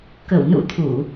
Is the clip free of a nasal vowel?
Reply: yes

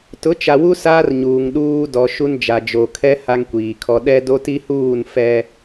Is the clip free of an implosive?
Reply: no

